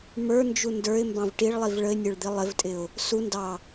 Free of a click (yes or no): yes